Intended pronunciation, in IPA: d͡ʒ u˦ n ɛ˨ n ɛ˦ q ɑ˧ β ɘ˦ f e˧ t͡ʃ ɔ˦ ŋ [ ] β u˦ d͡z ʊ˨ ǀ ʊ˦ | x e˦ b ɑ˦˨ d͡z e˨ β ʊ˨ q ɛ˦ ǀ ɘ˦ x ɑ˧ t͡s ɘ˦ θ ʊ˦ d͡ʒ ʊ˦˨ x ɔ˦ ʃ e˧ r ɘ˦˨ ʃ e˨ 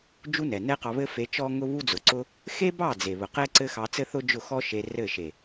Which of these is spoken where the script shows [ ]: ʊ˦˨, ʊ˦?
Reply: ʊ˦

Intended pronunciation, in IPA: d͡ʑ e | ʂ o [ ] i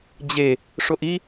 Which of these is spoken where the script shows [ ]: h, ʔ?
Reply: ʔ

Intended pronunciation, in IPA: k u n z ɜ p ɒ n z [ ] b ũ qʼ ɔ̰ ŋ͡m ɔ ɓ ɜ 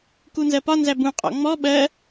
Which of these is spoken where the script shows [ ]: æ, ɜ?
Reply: æ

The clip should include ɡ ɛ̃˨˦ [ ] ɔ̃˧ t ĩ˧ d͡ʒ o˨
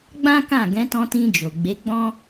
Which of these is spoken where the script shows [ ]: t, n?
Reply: t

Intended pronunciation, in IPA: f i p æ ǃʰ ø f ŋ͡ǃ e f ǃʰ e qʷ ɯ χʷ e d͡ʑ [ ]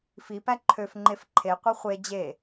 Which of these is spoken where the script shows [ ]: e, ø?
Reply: e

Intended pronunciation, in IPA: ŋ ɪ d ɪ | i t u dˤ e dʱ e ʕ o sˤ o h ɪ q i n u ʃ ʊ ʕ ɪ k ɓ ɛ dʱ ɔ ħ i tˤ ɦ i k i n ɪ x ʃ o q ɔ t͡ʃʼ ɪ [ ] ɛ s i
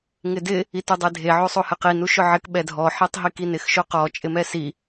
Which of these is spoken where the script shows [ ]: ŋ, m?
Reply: m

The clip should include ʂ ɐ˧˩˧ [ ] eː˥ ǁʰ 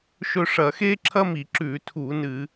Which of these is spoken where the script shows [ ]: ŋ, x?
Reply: x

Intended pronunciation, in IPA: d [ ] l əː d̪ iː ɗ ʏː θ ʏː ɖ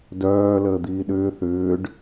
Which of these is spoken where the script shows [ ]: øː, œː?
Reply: œː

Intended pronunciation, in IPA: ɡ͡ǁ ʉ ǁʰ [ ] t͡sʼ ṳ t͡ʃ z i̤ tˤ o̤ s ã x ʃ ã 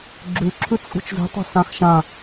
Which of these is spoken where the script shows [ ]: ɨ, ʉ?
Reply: ʉ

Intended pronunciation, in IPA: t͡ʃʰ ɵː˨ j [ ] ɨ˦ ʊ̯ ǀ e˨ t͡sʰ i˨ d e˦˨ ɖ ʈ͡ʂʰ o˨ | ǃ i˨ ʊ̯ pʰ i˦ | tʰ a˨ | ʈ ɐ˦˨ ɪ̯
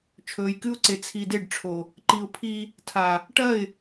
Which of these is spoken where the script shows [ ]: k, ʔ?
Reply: k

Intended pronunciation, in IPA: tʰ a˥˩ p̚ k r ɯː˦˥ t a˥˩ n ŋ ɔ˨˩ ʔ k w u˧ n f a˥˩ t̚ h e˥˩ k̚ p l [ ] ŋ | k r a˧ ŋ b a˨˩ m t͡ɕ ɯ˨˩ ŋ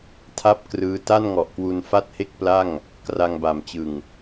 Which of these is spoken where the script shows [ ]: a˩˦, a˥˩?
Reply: a˥˩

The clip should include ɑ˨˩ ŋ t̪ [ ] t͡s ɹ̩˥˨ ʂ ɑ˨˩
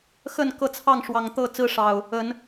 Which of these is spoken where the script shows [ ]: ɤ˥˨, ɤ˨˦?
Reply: ɤ˥˨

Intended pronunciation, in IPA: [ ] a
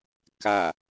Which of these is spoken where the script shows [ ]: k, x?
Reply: k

